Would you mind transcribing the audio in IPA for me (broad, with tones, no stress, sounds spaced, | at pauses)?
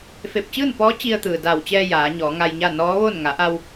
f e˧˩ p̚ t͡ɕ ɯː˥˨ n p ɔː˧˥ t͡ɕ i˧ ə̯ t̪ ɯː˩ d a˧˩ w t͡ɕ ɛː˧ j aː˩˧ ɲ ɔː˩˧ ŋ a˧ j ɲ a˥˨ n ɔː˧˥ ʋ o˥˨ n ŋ a˩˧ ʔ a˧ w